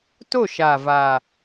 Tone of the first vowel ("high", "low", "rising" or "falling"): falling